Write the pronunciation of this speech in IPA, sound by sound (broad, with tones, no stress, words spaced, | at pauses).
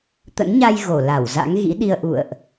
t̪ə̰˧˥nɲa˧j ɣo˧˩ la˧˩wza̰˧˥ŋ ɣḭ˧˥ɗi˧ə̯ ʔṵ˧˨ə̯ʔ